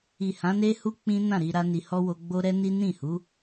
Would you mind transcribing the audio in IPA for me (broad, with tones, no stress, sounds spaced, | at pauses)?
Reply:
i˨ h ã˨˦ n e˦ h u˦ k͡p ĩ˦ n ã˦˨ ɾ i˧ ɾ a˦ n i˧ h ɔ˦ w o˧ ɡ͡b o˦ ɾ ɛ˦ n i˦ n ĩ˦˨ h u˨˦